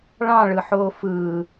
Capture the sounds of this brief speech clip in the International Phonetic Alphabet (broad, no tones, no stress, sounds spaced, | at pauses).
ɭ ɑ̃ ɭ ɯ ħ oː f ɯ